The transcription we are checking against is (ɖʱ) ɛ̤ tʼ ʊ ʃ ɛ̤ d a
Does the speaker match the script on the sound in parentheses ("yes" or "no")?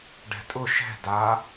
no